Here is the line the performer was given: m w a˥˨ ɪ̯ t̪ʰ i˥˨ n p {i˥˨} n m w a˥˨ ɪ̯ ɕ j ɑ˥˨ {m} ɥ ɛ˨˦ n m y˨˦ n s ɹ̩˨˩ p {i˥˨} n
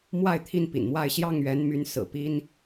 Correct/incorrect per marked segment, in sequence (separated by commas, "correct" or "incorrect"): incorrect, incorrect, incorrect